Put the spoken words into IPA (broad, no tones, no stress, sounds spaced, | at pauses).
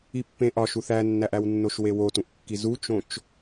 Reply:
i pː ẽ ʔ ɒ ʃ u θ æ nː æ ʔ æ w nː o ʃ w e w o t ũ ʔ kː i z u t͡ʃ õ t͡ʃ